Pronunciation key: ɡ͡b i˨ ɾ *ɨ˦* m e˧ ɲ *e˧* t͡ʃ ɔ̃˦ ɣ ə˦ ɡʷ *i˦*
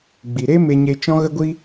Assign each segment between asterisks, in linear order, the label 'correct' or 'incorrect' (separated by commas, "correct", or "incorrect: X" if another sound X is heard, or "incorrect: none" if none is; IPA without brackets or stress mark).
incorrect: e˦, correct, correct